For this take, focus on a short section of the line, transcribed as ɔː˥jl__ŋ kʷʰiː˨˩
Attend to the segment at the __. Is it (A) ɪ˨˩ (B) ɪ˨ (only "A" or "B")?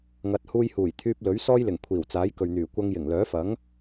A